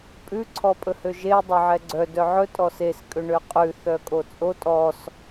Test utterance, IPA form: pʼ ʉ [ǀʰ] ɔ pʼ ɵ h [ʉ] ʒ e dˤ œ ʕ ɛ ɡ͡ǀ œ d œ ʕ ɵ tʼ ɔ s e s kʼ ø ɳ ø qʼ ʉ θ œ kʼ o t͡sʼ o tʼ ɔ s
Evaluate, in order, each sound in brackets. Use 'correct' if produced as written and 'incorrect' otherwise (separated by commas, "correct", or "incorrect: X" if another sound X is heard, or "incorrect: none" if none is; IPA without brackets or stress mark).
correct, incorrect: ø